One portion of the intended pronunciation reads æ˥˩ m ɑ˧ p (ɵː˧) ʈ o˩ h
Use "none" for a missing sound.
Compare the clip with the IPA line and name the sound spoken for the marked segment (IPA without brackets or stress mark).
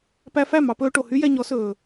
ɵː˧